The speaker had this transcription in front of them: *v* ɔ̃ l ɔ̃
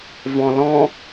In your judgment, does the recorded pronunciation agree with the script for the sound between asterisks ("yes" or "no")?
yes